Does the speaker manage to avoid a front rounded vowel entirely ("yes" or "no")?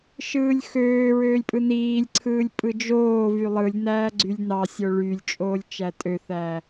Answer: no